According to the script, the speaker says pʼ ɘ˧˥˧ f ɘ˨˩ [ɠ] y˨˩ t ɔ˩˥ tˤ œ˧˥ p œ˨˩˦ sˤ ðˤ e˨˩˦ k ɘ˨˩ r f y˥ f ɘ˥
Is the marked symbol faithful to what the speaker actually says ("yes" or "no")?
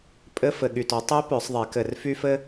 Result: yes